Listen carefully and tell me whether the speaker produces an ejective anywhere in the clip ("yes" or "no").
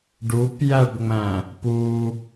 no